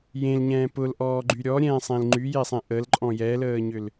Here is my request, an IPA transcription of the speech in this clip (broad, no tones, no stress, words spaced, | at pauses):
jẽlɲɛ̃ː pʊlʔɔːɡ͡ǃy ɾʲɔɾʲɛ̃ːsˤẽl ŋ͡ǃyjesˤẽ ʔəlǃʼɔ̃ jɛləːɲʏl